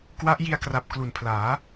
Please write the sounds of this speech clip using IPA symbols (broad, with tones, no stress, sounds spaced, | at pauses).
k w a˦˥ ʔ j i˧ a̯ k r a˨˩ p̚ k l u˨˩ n pʰ l aː˩˦